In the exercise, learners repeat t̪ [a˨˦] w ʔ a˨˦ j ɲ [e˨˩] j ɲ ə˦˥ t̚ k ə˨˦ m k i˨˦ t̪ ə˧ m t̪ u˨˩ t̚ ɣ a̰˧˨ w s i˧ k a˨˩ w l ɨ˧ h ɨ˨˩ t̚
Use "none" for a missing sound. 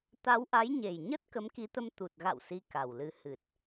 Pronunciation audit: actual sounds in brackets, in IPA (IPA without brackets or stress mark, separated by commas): a˨˦, e˨˩